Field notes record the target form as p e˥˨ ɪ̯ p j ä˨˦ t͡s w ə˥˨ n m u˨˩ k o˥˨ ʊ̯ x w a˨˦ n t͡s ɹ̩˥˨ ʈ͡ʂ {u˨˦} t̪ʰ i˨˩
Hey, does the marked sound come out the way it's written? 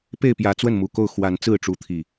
yes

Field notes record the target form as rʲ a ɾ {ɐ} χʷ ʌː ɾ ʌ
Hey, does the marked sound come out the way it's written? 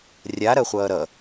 yes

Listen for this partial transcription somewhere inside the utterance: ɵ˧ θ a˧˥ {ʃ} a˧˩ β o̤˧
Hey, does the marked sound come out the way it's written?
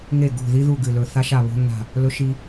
yes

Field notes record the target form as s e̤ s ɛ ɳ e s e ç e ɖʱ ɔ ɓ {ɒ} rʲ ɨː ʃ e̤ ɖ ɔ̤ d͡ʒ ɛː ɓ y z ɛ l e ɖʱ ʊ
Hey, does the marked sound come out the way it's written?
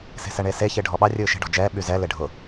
no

